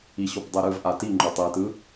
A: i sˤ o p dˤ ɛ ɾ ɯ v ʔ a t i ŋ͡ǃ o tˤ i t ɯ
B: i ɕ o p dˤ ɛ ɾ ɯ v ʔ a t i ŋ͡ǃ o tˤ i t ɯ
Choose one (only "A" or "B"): B